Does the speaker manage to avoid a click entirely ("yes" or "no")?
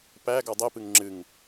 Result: no